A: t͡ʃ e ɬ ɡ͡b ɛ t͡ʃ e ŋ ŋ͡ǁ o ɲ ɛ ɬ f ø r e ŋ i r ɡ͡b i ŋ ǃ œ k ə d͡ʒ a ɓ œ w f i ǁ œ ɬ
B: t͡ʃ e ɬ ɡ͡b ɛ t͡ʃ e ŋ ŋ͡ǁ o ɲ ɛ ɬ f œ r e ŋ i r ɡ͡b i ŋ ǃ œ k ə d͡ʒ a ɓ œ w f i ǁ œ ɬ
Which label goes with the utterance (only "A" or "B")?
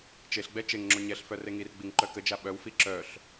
B